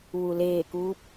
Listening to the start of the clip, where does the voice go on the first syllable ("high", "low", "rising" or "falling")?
low